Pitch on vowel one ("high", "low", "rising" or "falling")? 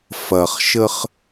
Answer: low